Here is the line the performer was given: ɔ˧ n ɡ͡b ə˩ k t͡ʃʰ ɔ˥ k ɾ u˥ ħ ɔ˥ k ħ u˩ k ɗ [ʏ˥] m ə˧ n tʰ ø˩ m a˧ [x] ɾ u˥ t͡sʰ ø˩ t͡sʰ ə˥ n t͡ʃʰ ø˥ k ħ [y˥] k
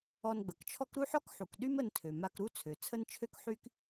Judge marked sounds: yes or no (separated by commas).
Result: no, no, yes